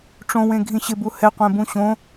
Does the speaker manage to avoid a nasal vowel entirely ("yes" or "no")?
no